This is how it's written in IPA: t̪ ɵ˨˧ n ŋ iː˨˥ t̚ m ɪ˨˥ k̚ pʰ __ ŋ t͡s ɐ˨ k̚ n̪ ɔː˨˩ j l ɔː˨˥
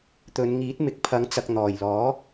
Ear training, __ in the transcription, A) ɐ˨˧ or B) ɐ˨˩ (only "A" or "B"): A